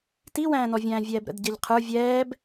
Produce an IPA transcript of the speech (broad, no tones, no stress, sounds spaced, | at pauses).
t i w æ̃ː n ɔ vʲ æ̃ː vʲ ɛː b ɾ ə̰ d ɟ ɛ ʎ qʰ ə˞ vʲ ɛː b